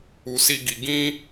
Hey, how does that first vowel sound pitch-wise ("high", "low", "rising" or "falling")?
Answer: low